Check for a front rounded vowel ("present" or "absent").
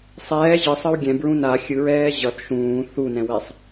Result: absent